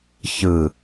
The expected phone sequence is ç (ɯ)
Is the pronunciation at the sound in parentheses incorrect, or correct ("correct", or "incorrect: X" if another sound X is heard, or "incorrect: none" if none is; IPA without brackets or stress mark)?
correct